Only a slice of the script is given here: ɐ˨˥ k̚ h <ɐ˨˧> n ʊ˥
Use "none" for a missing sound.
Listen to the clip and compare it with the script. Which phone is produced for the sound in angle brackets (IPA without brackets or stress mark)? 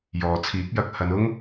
ɐ˨˧